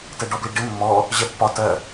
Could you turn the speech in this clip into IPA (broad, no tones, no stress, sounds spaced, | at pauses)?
t ɛ ɖ ɔ b l i ɖ ɪ mː ɔː | ʑ ɛ pː ɒ t ɜ